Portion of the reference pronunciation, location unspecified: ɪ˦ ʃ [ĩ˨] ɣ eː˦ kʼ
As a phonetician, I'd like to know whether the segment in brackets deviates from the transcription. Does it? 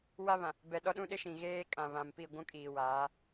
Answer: no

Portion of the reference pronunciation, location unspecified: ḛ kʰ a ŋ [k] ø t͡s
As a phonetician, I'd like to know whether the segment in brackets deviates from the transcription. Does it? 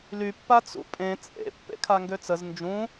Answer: yes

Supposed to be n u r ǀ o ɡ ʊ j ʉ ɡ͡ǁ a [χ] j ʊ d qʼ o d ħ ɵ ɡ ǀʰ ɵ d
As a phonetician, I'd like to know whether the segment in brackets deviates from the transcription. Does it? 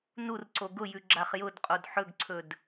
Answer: no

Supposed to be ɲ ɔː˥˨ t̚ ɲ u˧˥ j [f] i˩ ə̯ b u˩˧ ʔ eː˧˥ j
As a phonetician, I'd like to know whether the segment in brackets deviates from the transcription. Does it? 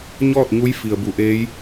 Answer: no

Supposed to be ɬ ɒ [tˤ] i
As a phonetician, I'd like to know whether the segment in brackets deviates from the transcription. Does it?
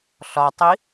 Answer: no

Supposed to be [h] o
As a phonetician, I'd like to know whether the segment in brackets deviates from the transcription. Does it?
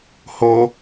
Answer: no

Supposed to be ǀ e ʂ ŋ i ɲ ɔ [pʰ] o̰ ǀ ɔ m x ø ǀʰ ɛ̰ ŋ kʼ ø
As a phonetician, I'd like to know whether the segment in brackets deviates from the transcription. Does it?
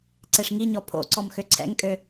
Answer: no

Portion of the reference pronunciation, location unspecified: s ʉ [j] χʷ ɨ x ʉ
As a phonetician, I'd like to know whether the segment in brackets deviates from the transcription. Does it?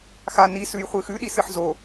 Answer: no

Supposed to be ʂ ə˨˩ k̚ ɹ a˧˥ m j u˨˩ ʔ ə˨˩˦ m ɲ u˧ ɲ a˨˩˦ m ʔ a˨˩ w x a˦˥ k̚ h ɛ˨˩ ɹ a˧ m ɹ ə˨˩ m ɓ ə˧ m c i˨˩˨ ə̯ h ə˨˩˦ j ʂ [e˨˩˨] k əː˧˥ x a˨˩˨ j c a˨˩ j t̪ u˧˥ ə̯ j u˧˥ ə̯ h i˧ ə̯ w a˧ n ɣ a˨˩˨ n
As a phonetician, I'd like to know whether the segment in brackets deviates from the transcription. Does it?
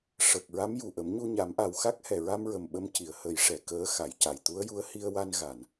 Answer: yes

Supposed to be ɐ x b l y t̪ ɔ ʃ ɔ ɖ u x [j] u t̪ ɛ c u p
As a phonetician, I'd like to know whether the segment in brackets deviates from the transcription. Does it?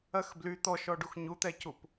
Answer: yes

